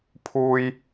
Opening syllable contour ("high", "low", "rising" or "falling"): low